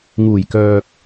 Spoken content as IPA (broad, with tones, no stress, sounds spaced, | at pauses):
ŋ uː˨˩ j k œː˨ k̚